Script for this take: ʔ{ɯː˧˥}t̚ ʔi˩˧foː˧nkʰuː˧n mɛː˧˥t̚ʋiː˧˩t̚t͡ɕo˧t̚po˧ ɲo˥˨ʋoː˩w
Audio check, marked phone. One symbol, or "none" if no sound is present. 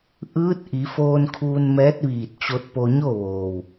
ɯː˧˥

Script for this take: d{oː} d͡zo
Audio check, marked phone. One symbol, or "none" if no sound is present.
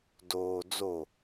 oː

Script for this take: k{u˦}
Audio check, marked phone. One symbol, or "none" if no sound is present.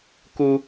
u˦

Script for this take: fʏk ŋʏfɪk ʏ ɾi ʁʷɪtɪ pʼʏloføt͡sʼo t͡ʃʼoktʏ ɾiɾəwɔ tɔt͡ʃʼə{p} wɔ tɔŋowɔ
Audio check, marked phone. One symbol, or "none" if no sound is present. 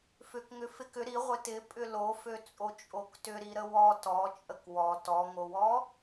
k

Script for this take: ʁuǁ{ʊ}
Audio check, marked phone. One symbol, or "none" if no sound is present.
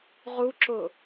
ʊ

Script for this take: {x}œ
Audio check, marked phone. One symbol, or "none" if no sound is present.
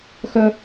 x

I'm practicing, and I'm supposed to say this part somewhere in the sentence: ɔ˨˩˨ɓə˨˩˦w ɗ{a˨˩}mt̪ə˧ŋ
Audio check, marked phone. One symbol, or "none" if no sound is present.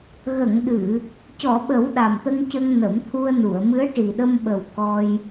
a˨˩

